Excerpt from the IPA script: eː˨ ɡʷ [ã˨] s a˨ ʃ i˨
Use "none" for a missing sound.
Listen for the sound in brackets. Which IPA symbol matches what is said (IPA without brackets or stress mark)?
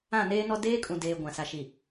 ã˨